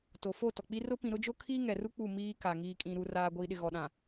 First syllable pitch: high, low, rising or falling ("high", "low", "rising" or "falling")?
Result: low